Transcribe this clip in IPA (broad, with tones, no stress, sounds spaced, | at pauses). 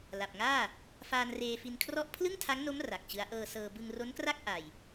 l a˨˩ p̚ ŋ aː˥˩ | f aː˧ n r eː˧ f i˧ n kʰ r ɔ˦˥ ʔ pʰ l ɯ˥˩ ŋ tʰ a˦˥ ŋ n o˦˥ m r a˨˩ k̚ t͡ɕ ɯ˦˥ a̯ ʔ ɤː˧ s ɤː˧ b ɯ˧ ŋ r o˦˥ n k r a˥˩ k̚ ʔ a˧ j